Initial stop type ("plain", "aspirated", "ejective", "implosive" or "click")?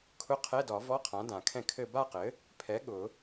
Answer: aspirated